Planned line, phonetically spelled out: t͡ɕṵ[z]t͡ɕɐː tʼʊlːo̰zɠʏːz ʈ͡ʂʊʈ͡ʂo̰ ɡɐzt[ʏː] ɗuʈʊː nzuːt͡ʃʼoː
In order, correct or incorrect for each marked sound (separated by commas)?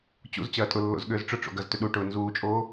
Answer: correct, incorrect